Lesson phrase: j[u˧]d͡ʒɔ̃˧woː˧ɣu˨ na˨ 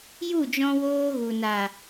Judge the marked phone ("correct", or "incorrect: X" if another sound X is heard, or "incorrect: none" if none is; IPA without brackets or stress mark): incorrect: u˦˨